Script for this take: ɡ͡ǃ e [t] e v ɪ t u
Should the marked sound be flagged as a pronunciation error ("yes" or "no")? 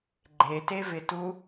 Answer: no